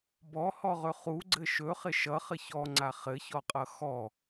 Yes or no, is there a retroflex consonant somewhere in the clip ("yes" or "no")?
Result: no